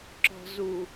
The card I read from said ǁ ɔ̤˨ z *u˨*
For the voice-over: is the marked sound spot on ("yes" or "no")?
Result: yes